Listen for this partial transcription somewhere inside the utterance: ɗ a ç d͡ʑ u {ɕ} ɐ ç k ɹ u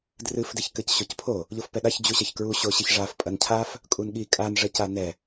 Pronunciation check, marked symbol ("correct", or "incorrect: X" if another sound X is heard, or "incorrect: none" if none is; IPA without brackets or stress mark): correct